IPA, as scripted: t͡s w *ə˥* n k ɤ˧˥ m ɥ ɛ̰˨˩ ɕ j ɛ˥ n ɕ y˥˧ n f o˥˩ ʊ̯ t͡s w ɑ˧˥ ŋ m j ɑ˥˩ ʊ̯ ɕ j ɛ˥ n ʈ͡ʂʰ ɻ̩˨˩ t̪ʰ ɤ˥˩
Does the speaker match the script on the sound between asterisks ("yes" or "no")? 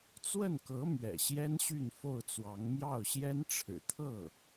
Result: no